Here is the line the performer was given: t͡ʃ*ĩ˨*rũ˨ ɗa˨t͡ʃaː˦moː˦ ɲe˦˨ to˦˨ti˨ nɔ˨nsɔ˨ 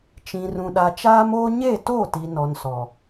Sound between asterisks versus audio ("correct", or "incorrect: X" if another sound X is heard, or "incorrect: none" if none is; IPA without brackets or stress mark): correct